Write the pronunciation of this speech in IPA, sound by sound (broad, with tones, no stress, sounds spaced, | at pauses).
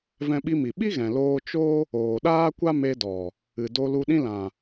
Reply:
v ɛ̃˧ ɓ i˧ m i˨ ɓ i˦ ɣ ɛ̃˨ l oː˧ t͡ʃ o˦ | oː˨ ɗ aː˦ kʷ a˦ m e˧ d ɔ˨ | ɨ˨ d o˧ l u˧ ɗ ĩ˦ l ã˨